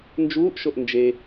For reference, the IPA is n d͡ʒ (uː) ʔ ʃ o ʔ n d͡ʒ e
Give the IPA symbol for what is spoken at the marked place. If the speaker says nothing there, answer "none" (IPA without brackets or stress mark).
uː